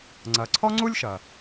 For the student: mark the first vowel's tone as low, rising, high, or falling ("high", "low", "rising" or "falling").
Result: low